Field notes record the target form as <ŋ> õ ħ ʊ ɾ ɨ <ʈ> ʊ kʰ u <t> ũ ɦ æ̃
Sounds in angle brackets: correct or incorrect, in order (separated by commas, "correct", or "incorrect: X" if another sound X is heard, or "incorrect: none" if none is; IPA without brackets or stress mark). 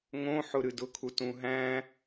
correct, incorrect: d, correct